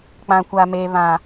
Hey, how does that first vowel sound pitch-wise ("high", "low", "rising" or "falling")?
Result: low